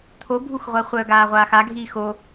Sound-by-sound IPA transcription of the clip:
t̪ʰobʱuxʁʷɜ χʷœɡaːʁʷaːx aɡʱiː xo

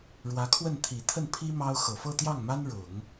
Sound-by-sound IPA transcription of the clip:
ɻwä˧˥kʰwə˥˩n t̪ʰi˨˩ t̪ʰə˥˩npʰi˥ mɑ˥ʊ̯ xɤ˨˩fɤ˥˧t̪jɑ˥˩ŋma˥n ɻʊ˨˩˦ŋ

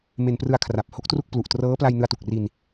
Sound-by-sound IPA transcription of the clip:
me˧nprɯ˧a̯kʰra˨˩p̚ ho˦˥k̚tru˥˩k̚plu˨˩ʔ trɤː˦˥pla˧j nɯ˧a̯tu˨˩k̚ri˧n

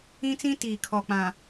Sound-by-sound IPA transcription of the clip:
ĩ˦t͡sĩ˦tiː˨ kʰɔ˨ k͡pã˨

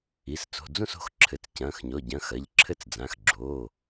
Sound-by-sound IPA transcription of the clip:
i˩˧˩s t͡so̤˩˧˩d͡zũ˥˨s o̤˥˨xǁʰɘ˩˧˩t͡s cɐ̃ː˩˧˩xɲɔ˩˧˩ɟɐ̃˩˧˩ xɐ˩˧˩ʎǁʰɘ˥˨t͡s d͡zã˩˧˩xɡ͡ǁoː˩˧˩

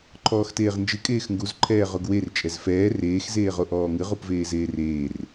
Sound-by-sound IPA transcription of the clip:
ǃʰɔːxteːʁnd͡ʒɨ kʼeːxŋɡuz ǃʰɛːʁoɡwer t͡ʃʼɛzfɛː reːx zeːʁoʔɔːŋɨ ʁupveːzeːreːr

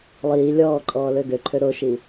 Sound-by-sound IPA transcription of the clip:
lˠiː lʲɔːǃʼɔːlø ɡøǃʰø ɾoʃi

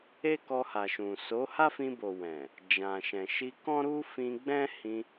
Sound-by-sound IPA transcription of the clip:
e˦kɔ˧ha˨ʃũ˨ so˨˦ha˦fĩ˧ bo˨ wɛ̃˨ | d͡ʒã˨ʃɛ̃˨ ʃi˧kɔ̃˦ɾu˦ fĩ˧ɡ͡bɛ̃˦ hĩ˧

